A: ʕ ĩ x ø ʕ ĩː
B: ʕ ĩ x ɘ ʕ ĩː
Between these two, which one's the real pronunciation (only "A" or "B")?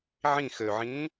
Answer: A